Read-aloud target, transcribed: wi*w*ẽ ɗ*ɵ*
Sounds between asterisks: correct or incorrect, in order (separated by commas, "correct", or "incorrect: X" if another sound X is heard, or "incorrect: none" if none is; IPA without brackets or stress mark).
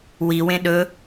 correct, correct